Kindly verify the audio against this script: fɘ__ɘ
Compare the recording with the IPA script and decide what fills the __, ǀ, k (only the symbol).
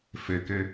k